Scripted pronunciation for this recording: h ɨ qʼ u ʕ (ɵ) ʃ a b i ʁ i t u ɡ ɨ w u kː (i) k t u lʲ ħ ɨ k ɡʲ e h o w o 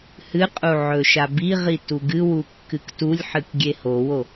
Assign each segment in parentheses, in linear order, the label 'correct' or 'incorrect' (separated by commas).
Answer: correct, incorrect